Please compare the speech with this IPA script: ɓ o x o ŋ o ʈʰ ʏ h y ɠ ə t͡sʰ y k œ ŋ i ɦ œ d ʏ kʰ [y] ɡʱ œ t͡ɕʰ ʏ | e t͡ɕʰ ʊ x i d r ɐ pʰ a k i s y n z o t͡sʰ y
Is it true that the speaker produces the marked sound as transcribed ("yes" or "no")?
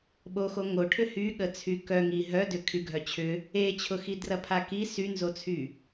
yes